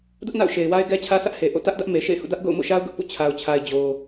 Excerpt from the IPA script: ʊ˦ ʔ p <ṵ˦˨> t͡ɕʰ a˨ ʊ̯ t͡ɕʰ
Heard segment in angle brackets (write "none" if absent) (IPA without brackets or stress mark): ṵ˦˨